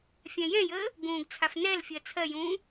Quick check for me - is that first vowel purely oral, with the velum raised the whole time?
no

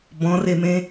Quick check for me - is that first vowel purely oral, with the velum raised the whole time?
no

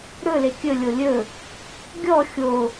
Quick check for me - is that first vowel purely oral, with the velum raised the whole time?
yes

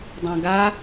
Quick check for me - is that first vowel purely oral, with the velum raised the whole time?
no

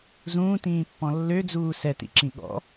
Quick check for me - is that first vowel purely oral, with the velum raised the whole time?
no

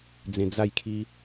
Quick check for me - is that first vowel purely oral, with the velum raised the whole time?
no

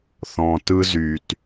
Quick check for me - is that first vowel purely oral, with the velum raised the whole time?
no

